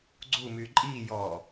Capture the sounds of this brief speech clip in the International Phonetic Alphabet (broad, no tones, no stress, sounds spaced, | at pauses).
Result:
ɡ͡ǀ u m y ǃʼ i j ɔ